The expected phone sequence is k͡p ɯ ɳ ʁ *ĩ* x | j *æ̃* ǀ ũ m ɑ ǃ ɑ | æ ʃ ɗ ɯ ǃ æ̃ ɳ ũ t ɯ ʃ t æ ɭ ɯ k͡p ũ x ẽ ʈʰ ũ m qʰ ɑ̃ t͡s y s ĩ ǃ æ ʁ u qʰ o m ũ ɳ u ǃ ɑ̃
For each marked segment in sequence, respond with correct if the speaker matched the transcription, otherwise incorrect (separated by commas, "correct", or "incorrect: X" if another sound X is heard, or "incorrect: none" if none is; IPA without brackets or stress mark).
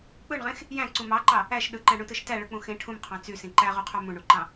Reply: incorrect: ẽ, correct